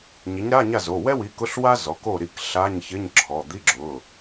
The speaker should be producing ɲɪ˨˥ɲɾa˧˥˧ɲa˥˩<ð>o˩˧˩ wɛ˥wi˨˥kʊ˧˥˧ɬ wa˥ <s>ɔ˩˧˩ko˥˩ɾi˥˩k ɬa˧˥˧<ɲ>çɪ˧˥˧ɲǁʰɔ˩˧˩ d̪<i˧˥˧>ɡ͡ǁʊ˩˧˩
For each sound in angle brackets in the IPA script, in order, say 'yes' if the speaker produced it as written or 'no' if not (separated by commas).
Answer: no, no, yes, yes